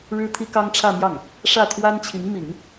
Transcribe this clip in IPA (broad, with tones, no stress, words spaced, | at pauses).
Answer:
ɻɻ̩˥t̪ʰi˥kɑ˥ŋ ʈ͡ʂʰä˥˧mjɑ˥˩ŋ | ʂä˥˩t̪ʰwa˥nt͡ɕʰi˧˥ŋ mi˨˩˦ŋ